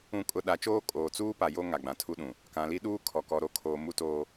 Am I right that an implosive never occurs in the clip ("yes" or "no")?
no